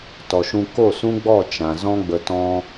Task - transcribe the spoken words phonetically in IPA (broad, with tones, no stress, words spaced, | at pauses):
tɔ˨ʃũ˧ ko˦˨sũ˦ɡ͡bɔ˦˨ t͡ʃã˨zɔ̃˦ɡ͡bə˧ tɔ̃˦